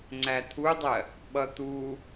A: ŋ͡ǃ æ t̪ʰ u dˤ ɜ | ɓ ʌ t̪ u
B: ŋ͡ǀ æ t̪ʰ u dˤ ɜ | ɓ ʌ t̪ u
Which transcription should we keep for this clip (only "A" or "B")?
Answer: B